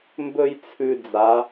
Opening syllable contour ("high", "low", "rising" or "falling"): high